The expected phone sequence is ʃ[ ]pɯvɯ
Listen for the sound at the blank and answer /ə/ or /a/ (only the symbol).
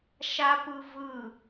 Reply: a